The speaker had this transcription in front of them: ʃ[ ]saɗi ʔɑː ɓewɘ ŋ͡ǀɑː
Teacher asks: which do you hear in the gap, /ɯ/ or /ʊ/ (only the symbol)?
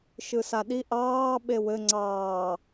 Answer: ɯ